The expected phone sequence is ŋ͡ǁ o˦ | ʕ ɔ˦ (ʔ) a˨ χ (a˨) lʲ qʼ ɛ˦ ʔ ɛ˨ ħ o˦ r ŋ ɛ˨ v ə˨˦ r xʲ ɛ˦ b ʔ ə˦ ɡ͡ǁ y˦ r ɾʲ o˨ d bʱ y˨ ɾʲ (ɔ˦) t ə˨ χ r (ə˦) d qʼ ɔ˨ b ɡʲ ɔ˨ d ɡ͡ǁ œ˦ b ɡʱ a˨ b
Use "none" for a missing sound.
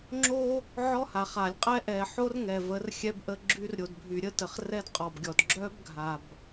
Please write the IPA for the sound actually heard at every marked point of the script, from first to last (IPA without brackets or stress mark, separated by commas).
h, a˨, ə˦, ɛ˦